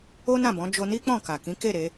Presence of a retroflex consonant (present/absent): absent